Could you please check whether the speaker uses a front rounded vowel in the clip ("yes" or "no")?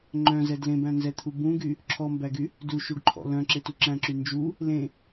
yes